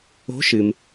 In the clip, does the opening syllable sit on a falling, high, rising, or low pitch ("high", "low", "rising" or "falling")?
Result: rising